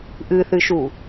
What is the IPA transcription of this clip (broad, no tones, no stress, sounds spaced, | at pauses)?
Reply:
ʔ ɨ θ ɨ ʃ u